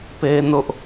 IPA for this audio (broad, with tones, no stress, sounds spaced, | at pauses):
p e˦ n ʊ˦ ʔ